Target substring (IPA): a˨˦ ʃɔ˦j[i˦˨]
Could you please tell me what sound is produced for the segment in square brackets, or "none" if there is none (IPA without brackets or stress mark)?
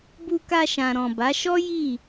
i˦˨